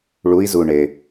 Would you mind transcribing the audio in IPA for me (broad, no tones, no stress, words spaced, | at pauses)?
ɭui̯zuɳe